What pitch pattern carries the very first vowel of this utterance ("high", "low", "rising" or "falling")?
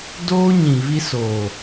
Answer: high